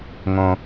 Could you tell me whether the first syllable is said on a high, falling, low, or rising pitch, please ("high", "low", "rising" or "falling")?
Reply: low